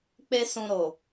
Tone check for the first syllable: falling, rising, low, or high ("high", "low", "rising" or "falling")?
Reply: high